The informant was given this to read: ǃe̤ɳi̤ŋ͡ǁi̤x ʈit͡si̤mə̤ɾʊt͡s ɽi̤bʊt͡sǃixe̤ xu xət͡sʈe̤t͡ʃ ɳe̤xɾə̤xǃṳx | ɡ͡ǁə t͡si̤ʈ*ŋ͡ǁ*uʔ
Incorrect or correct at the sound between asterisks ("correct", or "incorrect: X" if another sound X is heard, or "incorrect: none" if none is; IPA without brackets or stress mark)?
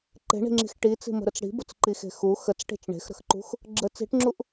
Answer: correct